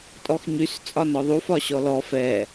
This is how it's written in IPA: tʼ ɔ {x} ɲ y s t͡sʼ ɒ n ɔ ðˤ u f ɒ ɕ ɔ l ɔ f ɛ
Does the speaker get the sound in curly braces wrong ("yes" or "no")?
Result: no